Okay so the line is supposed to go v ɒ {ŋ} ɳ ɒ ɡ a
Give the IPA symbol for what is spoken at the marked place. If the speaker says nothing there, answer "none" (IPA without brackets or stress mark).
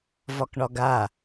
k